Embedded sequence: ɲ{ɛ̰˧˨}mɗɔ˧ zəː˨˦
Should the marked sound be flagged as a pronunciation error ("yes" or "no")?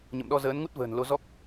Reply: yes